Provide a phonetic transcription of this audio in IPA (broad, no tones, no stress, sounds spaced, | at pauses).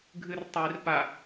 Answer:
ɡʱ ɨ r tˤ i r p a